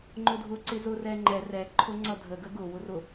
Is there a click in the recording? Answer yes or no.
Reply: yes